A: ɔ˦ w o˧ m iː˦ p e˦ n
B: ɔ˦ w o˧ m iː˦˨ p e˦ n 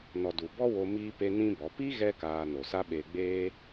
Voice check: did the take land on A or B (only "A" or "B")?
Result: A